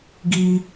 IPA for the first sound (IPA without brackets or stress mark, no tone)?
ɡ